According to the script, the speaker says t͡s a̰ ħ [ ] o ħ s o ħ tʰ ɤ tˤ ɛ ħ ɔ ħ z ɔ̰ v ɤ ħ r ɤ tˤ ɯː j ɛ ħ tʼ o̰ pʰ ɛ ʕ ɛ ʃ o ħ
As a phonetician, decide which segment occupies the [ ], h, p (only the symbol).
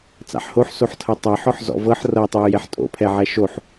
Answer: h